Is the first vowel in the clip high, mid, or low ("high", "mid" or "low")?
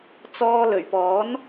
mid